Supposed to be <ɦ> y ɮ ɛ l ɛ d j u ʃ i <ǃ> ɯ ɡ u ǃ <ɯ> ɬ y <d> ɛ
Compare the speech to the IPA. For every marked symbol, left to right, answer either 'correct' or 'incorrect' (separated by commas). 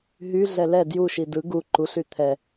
correct, incorrect, incorrect, incorrect